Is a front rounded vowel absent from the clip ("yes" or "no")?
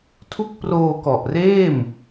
yes